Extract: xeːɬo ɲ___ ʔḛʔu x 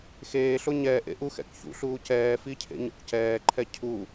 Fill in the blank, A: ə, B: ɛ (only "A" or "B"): B